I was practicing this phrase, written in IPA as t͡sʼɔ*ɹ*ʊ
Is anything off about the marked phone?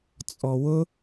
yes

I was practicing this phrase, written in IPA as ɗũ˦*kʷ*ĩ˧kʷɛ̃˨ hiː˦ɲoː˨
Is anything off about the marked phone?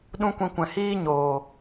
no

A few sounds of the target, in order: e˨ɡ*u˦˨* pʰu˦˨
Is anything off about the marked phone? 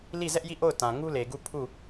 no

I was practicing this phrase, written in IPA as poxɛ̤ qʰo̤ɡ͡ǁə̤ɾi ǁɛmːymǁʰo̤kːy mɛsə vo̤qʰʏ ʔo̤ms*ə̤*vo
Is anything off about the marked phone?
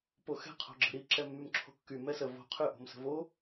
no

